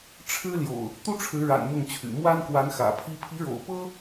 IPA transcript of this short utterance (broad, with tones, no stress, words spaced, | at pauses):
ʈ͡ʂʰɻ̩˦ljo̰˨˩ʊ̯ | t̪u˦ʈ͡ʂʰɻ̩˨˦ɻa̰˨˩n mʊ˥˨ŋt͡ɕʰy̰˨˩ mwa˦nkwa˨˦n xä̰˨˩pʰi˦ pʰi˨˦ɻo̰˨˩ʊ̯pɤ˦